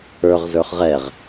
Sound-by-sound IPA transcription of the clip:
ə˞ʁ zə˞χʁɛʁ

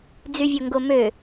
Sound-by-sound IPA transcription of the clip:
d͡zyvʲoŋɡomø

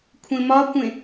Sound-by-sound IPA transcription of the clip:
kʷʰẽmɒkʷẽ

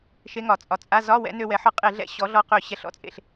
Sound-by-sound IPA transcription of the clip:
ʃe˧˥ŋɒ˩˧t͡sʼɒ˩˥ t͡sʼa˧˥˧ zɒ˧˥˧wɛ̰˩˥ nø˧wɛ˩˥ ħɒ˧qʼe˧˩˧ɮɛ̰˧ ɕɔ˩˥ɮɔ˧qø˧˩˧ ɕɛ˧˩˧ɬɔ̰˧˥t͡sʼḛ˩˧ɬ

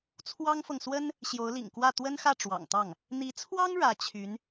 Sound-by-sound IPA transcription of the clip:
t͡sʰwɑ˥ŋfɤ˨ŋ swə˥n | ɕjo˧˥ʊ̯lḭ˨˩ŋkwä˥˩ t̪wə˥nxä˥˩ ʈ͡ʂwɑ̰˨˩ŋt̪ɑ˥˩ŋ | n̪i˧˥t͡sʰwɑ˥ŋ ɻä˧˥t͡ɕʰy˧˥n

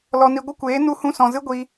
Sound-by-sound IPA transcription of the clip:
lɔ˧ni˧ ɡʷə˦kʷeː˨˦ nu˦hũ˦sɔ̃˧ zɨ˦ɡʷi˧

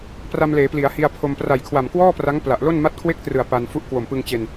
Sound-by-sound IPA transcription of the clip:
pra˧mleː˩˦pli˩˦a̯ hi˧a̯pʰo˧m pra˨˩jkʰwa˨˩mkwɔː˥˩pra˦˥ŋ pla˨˩ʔlo˥˩n ma˦˥t̚kʰwe˥˩k̚trɯ˨˩a̯ pa˧nfu˥˩ʔ kwo˨˩mpɯ˧ŋt͡ɕe˧n

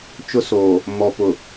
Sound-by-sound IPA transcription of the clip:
t͡ʃʊ˦soː˨ | mɔ˨ pʊ˨

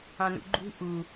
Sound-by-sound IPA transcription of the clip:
ɑ̃nṵɡ͡ǃṳ ʔu

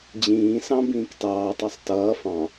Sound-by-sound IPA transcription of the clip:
d͡ʑĩːsɑ̃ bĩːktɑːtˤɑsˤ tʌː fɑ̃

